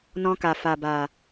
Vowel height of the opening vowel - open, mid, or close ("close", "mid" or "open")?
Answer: mid